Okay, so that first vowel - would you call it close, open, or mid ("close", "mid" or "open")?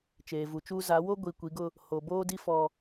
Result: mid